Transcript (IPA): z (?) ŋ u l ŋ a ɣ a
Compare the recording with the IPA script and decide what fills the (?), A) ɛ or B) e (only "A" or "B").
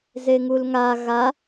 B